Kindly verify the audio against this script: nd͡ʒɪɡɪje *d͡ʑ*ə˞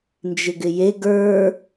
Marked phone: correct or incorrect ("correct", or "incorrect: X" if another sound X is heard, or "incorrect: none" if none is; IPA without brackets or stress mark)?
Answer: incorrect: ɡ